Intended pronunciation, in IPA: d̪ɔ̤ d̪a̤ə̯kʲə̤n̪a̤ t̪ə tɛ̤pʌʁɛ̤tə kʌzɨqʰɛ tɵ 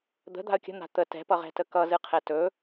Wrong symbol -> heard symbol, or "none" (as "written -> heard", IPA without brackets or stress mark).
ɔ̤ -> ə̤